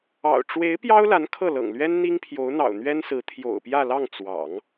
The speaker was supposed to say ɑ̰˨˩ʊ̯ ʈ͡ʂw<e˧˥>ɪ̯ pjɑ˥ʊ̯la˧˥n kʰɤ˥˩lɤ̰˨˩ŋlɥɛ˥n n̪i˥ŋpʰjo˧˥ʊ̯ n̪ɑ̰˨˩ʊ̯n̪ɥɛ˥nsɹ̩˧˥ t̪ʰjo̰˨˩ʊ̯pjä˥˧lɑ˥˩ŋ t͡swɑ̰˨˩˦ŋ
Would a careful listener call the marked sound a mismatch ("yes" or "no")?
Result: no